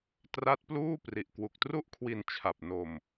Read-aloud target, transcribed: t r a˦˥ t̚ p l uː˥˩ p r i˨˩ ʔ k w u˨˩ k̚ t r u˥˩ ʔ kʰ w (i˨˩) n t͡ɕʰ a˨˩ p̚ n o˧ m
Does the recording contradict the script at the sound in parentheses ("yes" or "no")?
yes